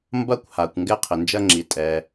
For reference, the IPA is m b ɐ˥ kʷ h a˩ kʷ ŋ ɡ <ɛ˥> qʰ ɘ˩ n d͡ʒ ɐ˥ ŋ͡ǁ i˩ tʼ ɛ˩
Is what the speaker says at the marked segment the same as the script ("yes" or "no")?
yes